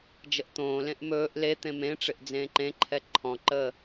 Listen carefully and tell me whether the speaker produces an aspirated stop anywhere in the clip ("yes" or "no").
yes